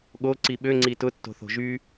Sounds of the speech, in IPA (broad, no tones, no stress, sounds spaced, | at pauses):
ɠ o ǀ i ɓ ø ŋ͡ǀ i t ʊ tː o̤ θ o̤ ʒ yː